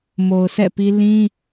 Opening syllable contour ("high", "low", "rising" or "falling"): low